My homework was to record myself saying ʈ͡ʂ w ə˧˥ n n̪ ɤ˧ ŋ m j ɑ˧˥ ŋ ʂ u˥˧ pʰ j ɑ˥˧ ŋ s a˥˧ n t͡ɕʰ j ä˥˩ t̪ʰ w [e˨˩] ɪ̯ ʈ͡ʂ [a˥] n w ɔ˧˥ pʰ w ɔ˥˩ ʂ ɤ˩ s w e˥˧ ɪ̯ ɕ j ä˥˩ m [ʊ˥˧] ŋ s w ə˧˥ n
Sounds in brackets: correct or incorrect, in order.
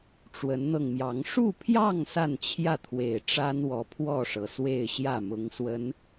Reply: correct, correct, incorrect

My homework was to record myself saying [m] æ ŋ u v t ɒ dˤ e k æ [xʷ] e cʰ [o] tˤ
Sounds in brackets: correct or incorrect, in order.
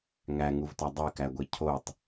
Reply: incorrect, incorrect, correct

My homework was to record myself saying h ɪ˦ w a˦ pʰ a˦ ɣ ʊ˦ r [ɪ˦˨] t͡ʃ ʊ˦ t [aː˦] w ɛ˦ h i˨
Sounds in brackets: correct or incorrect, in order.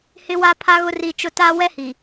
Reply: incorrect, correct

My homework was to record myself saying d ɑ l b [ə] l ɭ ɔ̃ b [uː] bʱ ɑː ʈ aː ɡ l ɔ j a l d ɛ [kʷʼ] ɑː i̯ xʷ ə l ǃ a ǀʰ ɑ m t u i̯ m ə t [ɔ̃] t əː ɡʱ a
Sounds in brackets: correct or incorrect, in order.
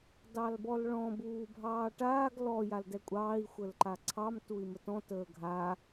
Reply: incorrect, correct, correct, correct

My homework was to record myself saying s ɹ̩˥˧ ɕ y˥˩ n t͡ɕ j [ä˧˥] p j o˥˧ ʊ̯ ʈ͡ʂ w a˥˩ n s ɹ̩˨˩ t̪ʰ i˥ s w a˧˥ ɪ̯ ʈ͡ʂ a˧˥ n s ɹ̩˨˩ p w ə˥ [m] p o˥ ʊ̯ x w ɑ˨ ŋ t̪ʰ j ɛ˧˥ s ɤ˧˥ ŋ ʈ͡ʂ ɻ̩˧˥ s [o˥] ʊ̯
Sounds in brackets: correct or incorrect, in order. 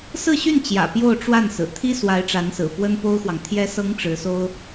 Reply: incorrect, incorrect, correct

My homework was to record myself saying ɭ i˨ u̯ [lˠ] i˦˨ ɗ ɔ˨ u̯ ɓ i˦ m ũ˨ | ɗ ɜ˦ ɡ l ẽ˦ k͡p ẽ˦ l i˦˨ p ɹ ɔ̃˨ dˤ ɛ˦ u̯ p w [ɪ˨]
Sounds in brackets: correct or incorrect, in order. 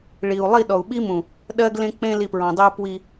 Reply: correct, incorrect

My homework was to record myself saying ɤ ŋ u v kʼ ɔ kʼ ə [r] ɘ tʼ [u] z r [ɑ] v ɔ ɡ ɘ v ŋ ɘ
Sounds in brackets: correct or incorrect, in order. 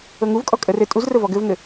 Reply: correct, correct, incorrect

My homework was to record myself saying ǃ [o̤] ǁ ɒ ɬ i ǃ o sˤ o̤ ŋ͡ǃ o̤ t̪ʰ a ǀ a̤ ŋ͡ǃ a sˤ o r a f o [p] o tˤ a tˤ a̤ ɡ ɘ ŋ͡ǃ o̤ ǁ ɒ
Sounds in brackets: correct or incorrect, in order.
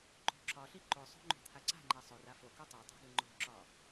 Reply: correct, incorrect

